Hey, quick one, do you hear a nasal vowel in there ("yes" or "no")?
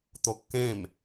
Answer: yes